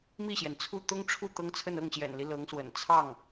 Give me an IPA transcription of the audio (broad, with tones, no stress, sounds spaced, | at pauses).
m i˥˩ ɕ j ɛ˩ n t͡sʰ u˥˩ t̪ ʊ˥ ŋ ʈ͡ʂʰ u˥˩ t̪ ɤ˥ ŋ t͡sʰ ə˥˧ n ɤ˥˩ ŋ ɕ j ɛ̰˨˩ n l i˦ l ɤ˧˥ ŋ s w ə̰˨˩ n t͡sʰ ɑ˥˩ ŋ